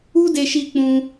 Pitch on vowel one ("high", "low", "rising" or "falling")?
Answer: high